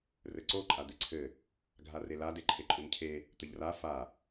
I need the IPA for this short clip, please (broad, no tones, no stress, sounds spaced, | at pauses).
r ɘ ǀ o ǃʼ a d̪ e ǀʰ ɘ | ɡʱ a r e l a d e ǃʰ e ǃʼ u n cʰ e | t̪ ɘ ʎ r a f a